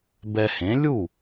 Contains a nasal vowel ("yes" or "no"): yes